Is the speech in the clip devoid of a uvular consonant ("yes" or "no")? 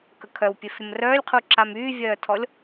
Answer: no